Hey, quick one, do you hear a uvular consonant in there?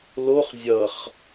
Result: yes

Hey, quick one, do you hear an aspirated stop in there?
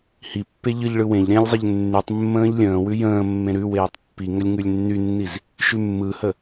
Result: no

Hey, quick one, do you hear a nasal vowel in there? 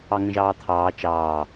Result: yes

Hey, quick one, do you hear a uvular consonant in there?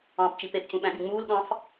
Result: no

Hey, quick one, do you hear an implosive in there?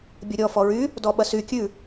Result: yes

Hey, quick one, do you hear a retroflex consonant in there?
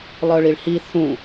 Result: yes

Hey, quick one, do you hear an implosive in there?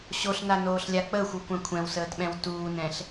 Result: yes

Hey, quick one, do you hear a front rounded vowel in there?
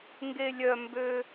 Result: yes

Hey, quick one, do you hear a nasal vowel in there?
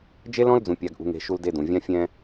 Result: yes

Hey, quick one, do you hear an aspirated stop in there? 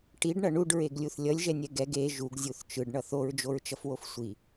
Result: no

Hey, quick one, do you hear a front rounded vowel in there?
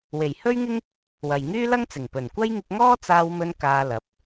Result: yes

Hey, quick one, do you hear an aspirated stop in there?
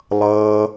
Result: no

